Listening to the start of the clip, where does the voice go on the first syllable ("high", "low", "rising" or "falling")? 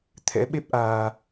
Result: rising